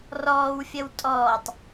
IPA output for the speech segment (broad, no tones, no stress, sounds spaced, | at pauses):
r ɔː w fʲ ɐ w tʼ ɔː tˤ